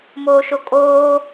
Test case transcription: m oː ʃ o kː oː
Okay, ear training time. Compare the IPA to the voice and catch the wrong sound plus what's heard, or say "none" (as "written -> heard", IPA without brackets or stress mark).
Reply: kː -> kʼ